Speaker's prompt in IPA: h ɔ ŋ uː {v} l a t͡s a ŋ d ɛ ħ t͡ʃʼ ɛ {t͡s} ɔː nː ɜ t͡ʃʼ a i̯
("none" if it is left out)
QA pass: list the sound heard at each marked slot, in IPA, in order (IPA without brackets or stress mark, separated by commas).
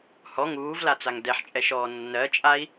v, ʃ